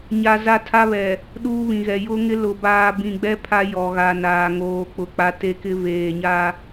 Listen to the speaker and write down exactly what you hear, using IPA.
ɲa˦ za˦tʰa˦βɛ˨ | ɗuː˦βĩ˨ɣɛ˨ jʊ˦ŋɪ˦ lʊ˨baː˨ bĩ˨ɡ͡bɛ˦ pʰa˦jɔ˨ɣa˨naː˨ ŋoː˨ k͡pʊ˨k͡pa˦ te˦ kɪ˦ veː˨ɲa˦

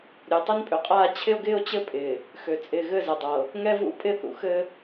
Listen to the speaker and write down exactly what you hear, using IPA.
ɾʲø˨tˤɘ˦npʼø˨qʼaː˦ t͡ɕʰɪ˦o̯ɡɪː˦o̯t͡ɕɘ˦pʼɪː˨ | xø˨ t͡sʼɪː˨ɣɘ˦˨zɘ˨dˤɤ˨ | ŋɛ˦vṵ˦ pʼɪ˦ θṵ˨xɘ˦

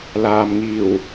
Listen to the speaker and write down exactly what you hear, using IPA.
laː˨mŋiː˨˩w

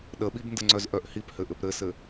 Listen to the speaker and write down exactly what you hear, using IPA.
ɗəɓibndəŋ͡ǀœz ʔœʔhiphɘ ʔɘpɾɘsɘ

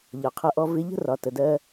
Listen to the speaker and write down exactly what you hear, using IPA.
ʎɒ˨qʰʌ˧ʔɔ˧ vɪ˧ʎə̤˦rɒ˨ tə˨dɜ˧

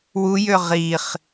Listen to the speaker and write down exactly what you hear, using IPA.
wujø ʁiχ

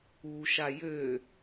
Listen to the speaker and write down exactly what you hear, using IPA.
uʃa jø

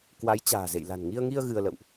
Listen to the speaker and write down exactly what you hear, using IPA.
kwa˨˦j t͡ɕa̤ː˨˩zḛ˧˨j la̤˨˩nŋi˧ə̯ŋi˧ə̯ ɣɨ˧ə̯lə̰˧˨wʔ

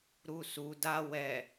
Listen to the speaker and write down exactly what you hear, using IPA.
ɾusu da wɛ

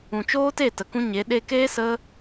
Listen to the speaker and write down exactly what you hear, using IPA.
ũ˨t͡ʃoː˦te˦˨ tə˨kũ˦ɲe˨˦ ɗe˧keː˦ sə˦

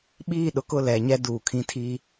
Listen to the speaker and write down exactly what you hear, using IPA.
ɓiː˦˨ɗʊ˦kʊ˦˨ lɛ˨˦ɲɛ˦ duː˨kʰĩ˦tʰiː˦

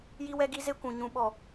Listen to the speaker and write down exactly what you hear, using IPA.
ji˦wɛ˦ɡi˦ ze˦kʷũ˨ ɲũ˨ɓɔ˨

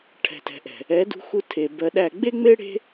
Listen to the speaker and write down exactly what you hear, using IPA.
ʈʰɛ̤˨tɛ̤˨ʔɛ̤˨ | ɛ˨˦dṳ˧xu˧tʰe˨ bɜ˧ɗæ˦˨ ɡ͡be˦ŋ͡me˦ ɽe̤˦

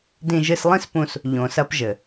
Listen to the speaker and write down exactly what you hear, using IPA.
dĩ˧ʒɨ˧slˠĩ˦spũ˧s | ʎõ˨sɐ˧pʒɘ˨

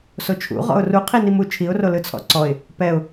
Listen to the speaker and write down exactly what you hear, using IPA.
sot͡ʃʰṵ ʁɔ̰ʊ̯ru qʰinimu t͡ʃʰiʊ̯ro lɯt͡sʰɔ̰ǀɔɪ̯ | pɛʊ̯

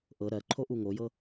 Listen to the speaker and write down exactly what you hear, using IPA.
ʔɤ ɾɜǃʰo ʔuŋojɤ

